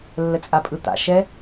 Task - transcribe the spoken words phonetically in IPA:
lː ə t͡sʼ a pʼ ɯ t̪ a̰ ʃ ɛ

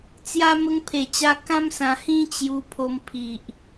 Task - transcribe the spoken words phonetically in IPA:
t͡s j a˦ m ə˧ ŋ pʰ e˨˩ t͡ɕ a˧ k ã˦ m s ã˧ h ĩ˦ t͡ɕ j u˧ pʰ o˧ m pʰ i˨ ʔ

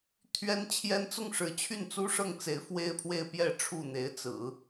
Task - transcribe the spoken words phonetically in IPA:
t̪ʰ ɥ ɛ˥ n t͡ɕʰ j ɛ˥ n t͡s ʊ˥˩ ŋ ʂ ɻ̩˧˥ t͡ɕʰ y˥˩ n t͡s u˥ ʂ ɤ˥˩ ŋ t͡s e˧˥ ɪ̯ f w e˥ ɪ̯ pʰ w e˥˧ ɪ̯ p j ɛ˥˧ ʈ͡ʂʰ u˥˩ n̪ e˧˥ ɪ̯ t͡s ɹ̩˨˩˦

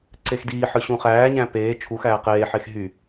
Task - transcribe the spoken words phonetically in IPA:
ǀ e x d iː ħ ɯ ɕ ũ χ æː ɲ æ̃ p eː t͡ʃʰ u x æː q eː ħ e x ɦ y

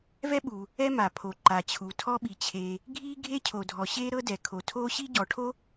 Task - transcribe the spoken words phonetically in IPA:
v ɛ˥ ɓ uː˩ | ɛ˥ m a˩ pʰ o˩ ǃ a˩ t͡ɕʰ u˩ tʰ ɔ˥ ɓ i˩ t͡ɕʰ eː˩ | ɡʱ iː˥ ɡʱ e˥ cʰ o˩ dʱ ɔ˩ ɕ eː˥ ɾ ɤ˥ d ɛ˩ kʰ o˩ tʰ oː˥ ɕ i˥ ɟ ɔ˩ ʈʰ o˥

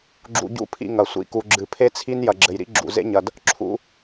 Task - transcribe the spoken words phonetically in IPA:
ɡ͡ǁ ṵ˧ ɟ ṵ˦ pʰ ḭ˧ ŋ ɐ˨ sʷ ḭ˨ k u˨ ɡ͡ǁ ɨ˨ pʰ e˦ t͡sʰ i˦ n j ɐ˨ ɡ͡ǁ ɘ˨ j ɾ ḭ˦ ɡ͡ǁ ṵ˨ z ḛ˦ ɲ ɐ˨ d | ǁʰ ṵ˧

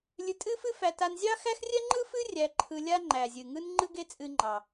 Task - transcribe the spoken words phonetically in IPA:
lʲ ɨ˧ tʼ ɨ˥ f ɨ˥ f æ˧ t a˧ n zʲ ɑ˥ x æ˥ x rʲ ɛ˥ ŋ͡ǃ ɯ˥ f ɨ˥ rʲ æ˧ ǃʰ ɯ˧ lʲ a˧ ŋ͡ǃ æ˩ zʲ ɨ˩ ŋ ɯ˧ n ŋ͡ǃ ɯ˥ ɡ e˥ t͡sʼ ɨ˧ ŋ͡ǃ ɑ˩

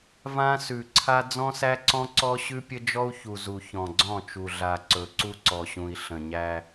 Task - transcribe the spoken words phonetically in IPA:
v ã˦ s ʉ˨ ǀʰ a˦ d͡z ɔ̃˦ s æ˦ ǀ ɔ̃˦ ǀ ɔ˦ ɕ ʉ˦ pʲ ə˦ d͡ʒ ɔ˦ u̯ ç u˨ z u˨ ç ɔ̃˨ ɡ͡ǀ ɔ̃˦˨ t͡ʃ u˨ ɮ a˨ ǀ ɵ˨ ǀ u˦ ǀ ɔ˨ ɕ ũ˨ i̯ ɬ ə̃˨ ɲ æ˦

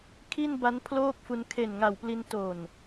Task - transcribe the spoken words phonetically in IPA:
kʰ i˥˩ n b a˦˥ n pʰ l oː˥˩ k̚ f u˧ n kʰ e˨˩ n ŋ a˨˩ w p l i˧ n t o˨˩ n

